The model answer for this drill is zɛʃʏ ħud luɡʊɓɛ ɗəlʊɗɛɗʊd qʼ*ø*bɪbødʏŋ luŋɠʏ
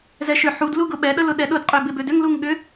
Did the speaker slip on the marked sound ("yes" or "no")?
no